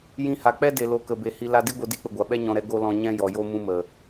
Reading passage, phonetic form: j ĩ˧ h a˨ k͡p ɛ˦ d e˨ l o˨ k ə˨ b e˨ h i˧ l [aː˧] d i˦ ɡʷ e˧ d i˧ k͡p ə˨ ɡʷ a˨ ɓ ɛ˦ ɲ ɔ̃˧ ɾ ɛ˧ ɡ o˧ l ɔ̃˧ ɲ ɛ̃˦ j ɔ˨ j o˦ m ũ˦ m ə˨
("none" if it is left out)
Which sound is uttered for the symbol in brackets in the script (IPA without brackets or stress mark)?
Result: a˧